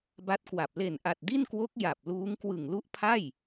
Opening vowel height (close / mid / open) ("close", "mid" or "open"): open